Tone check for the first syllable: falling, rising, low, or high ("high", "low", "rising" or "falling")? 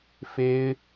high